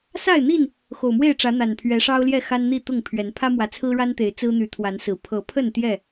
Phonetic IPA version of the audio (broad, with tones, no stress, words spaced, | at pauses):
sa˥˨ɪ̯n̪i˥˨n | xo˨˩ʊ̯mwe˥˨ɪ̯ʈ͡ʂä˨˦ n̪a˨˩npʰɥɛ˨˦ʂɑ˦ʊ̯ljɛ˥˨ xa˦nn̪i˥˨t̪ʊ˥˨ŋpʰɥɛ˨˦n pʰä˦mwä˨˦t͡sʰɹ̩˦ɻa˦n t̪e˨˦ɪ̯t͡sɹ̩˦n̪y˨˦ t̪ʰwa˨˦nsɹ̩˨˩ pʰɤ˨˦pʰə˥˨n t̪jɛ˥˨